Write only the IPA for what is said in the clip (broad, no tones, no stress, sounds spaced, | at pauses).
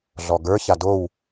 ɮ ɔ ɡ ə˞ ç a d o w